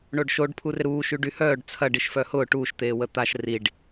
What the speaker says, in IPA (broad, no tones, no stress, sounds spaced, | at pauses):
ɳ o ɖ ʃ o ɖ pʰ u r ɪ ɾ uː ʃ y ɖ y h œː ɖ t͡sʰ ɐ ɖ i ʃ f œ h ʊː ʈ uː ʃ t̪ eː w ə t̪ a ʃ r i ɖ